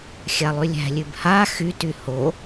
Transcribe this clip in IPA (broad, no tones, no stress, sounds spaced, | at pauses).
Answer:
xʲ a lˠ y lʲ æ̤ lʲ ʉ b h a x y t y h o